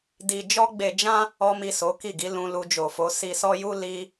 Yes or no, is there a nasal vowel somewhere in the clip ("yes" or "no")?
yes